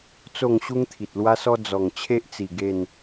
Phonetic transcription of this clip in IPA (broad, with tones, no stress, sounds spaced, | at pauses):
t͡s o˥˧ ŋ ɕ u˦ ŋ t̪ʰ i˨ t̚ l w a˦ s ɔ˦ d͡z ɔ˨˩ ŋ t͡ɕʰ e˦ ʔ t͡s i˨˩ ɡ e˥˧ n